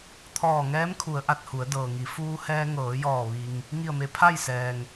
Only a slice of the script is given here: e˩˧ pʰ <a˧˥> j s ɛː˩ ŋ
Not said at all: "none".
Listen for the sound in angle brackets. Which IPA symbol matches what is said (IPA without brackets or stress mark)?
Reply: a˥˨